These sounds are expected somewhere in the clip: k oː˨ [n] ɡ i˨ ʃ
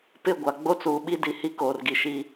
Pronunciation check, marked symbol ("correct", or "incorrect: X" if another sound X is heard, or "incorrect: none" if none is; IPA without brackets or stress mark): incorrect: r